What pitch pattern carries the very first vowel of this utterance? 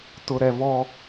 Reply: low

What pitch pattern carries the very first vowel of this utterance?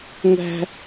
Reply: high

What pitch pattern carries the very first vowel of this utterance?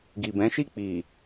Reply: low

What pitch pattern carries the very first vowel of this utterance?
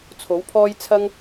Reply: rising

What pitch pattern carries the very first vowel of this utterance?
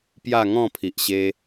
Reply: falling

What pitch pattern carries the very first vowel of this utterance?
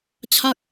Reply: falling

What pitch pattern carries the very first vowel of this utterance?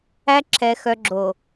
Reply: high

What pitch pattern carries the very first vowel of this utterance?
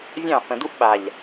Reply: falling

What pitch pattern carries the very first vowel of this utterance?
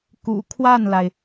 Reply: low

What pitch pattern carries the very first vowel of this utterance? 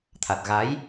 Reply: low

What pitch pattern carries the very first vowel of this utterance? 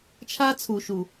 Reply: high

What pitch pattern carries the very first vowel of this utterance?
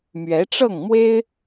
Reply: rising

